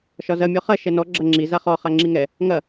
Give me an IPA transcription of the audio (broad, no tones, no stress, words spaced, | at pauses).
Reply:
ʃɒzɐ mʲɒχɐ ʃɛnɔ ɡ͡ǁɐŋ͡ǁi zaχɔ χaŋ͡ǁiŋɛ | ŋɐ